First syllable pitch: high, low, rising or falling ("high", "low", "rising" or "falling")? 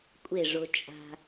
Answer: falling